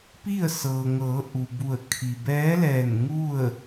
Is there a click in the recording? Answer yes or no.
no